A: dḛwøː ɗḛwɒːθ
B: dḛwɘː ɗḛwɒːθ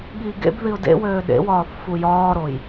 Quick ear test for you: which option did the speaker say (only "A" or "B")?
A